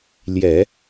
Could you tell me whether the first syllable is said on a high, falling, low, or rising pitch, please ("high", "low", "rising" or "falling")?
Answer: low